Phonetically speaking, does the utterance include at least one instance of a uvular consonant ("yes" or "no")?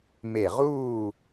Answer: yes